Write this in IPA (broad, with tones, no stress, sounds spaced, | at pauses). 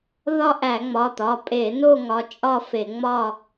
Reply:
ð ɒ˥˧ ʔ æ˧˩˧ ŋ͡m ɒ˩˧˩ t̪ ɒ˩˧˩ pʼ e˧˩˧ n o˥˧ ŋ ɒ˩˧˩ t͡ʃʼ ɒ˥˧ f e˧˩˧ ŋ͡m ɒ˥˧